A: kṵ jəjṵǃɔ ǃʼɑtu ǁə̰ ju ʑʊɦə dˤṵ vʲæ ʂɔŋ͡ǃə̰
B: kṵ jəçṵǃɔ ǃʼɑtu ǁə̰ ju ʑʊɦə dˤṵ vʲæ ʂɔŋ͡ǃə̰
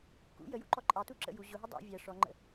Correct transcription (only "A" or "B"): A